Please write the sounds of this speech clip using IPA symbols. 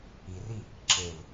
i r i | ǁ e l

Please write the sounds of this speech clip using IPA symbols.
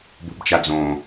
b o̤ b t͡ʃ a d͡z õ

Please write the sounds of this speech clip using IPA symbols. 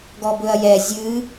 ɡ ɔ b ɵ ɐ̯ j ɛ zʲ ɨ

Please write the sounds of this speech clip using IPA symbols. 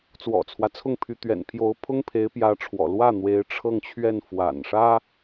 t͡s w ɔ̰˨˩ t͡sʰ w ä˦ t͡sʰ ʊ˥˩ ŋ pʰ y˧˥ t̪ ɥ ɛ̰˨˩ n pʰ j o˧˥ ʊ̯ pʰ ʊ˥ ŋ pʰ e˧˥ ɪ̯ p j ä˧˥ ʈ͡ʂʰ w ɔ̰˨˩ l w ä˥˩ n̪ w e˧˥ ɪ̯ ʈ͡ʂʰ ɤ˥˧ ŋ t͡ɕʰ ɥ ɛ˥˩ n f w a̰˨˩ n ʂ ä˥

